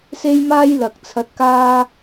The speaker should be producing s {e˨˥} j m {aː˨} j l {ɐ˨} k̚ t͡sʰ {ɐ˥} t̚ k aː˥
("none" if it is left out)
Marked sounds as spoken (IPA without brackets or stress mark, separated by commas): e˥, aː˥, ɐ˨, ɐ˧